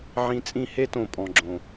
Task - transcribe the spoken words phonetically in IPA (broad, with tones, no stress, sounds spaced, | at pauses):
ʕ ĩ˧ t͡sʼ ĩ˦˨ h e˦ t õ˨ pʼ ɔ̃˨ ɡ͡ǁ õ˨